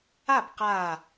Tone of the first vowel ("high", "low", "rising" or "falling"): falling